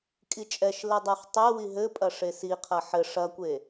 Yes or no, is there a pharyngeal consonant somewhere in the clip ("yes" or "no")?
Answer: yes